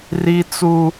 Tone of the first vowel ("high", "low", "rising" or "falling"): high